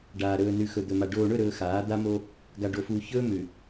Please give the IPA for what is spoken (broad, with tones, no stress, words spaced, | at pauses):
ɖaː˨ ɾɵː˨nʉ˨ xɵ˨d̪ɵ˨ma˨ ɖoː˨ɳɵ˦˨ɾɵː˨ xaː˨˦ d̪a˦mo˦ | ɡa˨ɖo˨fuː˨ çɵː˦ mʉ˨